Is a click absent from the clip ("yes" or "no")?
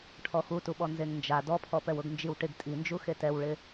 yes